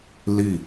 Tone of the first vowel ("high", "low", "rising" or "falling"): falling